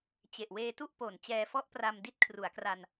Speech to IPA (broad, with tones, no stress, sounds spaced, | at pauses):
t͡ɕ e˨˩ ʔ w eː˧ t u˥˩ ʔ p o˩˦ n t͡ɕ ɛː˧ f ɔ˥˩ ʔ p r a˧ m d i˥˩ t̚ kʰ r u˩˦ a̯ k r a˧ n